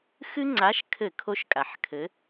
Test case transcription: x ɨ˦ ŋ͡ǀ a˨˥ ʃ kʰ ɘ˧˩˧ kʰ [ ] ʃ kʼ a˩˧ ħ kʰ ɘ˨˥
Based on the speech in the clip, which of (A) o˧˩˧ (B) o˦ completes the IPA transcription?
B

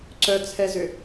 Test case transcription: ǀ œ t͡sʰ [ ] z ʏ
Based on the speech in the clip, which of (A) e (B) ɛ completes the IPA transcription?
B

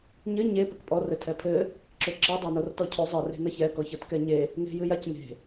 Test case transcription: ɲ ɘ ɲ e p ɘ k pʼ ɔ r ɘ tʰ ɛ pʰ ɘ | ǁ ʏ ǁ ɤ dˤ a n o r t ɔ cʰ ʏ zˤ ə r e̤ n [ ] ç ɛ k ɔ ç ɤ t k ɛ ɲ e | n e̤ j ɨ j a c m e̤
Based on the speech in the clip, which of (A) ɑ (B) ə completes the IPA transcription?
B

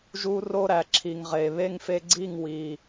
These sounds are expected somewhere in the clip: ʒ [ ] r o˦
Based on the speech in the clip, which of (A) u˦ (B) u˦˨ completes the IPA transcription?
A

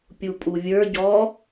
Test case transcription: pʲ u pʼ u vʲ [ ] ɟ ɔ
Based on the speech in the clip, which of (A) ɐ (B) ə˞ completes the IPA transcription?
B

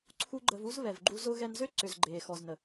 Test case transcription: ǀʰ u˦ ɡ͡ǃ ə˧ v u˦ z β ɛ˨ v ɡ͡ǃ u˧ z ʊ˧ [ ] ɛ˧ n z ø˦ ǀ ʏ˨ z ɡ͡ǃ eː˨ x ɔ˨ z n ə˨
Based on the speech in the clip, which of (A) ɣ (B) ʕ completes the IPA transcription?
A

